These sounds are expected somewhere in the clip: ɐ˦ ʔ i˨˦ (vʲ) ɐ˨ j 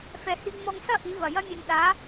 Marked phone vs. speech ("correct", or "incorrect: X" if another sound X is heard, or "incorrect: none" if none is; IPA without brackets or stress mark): incorrect: v